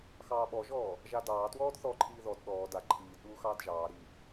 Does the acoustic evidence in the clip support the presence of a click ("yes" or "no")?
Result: yes